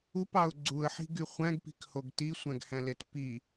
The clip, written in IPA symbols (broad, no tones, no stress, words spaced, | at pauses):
upɑʊ̯ ɡ͡ǀuə̯ħi̤ɡy χʷæ̃ɡpi̤khoɡ tisʷæ̃ɡhæ̃let pi